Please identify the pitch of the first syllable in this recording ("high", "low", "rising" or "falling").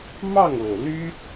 falling